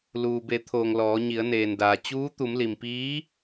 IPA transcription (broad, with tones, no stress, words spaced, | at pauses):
luː˩be˩˧t̪ʰoː˩ŋ lɔː˩˧ɲi˩˧ə̯neː˩ndaː˩ t͡ɕuː˧˥t̪u˩˧mli˩m piː˧˥